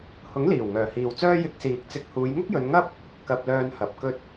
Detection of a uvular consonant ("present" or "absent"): absent